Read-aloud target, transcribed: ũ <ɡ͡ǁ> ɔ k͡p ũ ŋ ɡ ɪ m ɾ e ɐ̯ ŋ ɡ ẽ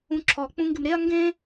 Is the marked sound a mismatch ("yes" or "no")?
yes